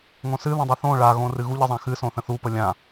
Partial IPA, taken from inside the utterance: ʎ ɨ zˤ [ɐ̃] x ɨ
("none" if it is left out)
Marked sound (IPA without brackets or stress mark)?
ã